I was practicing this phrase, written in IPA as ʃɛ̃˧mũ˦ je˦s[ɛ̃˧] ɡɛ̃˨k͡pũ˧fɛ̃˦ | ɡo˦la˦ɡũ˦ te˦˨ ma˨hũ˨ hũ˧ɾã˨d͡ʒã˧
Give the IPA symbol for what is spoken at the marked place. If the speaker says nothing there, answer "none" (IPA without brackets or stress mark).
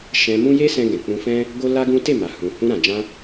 ɛ̃˧